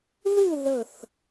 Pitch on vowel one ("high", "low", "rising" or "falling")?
falling